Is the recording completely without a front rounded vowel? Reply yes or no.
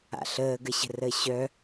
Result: no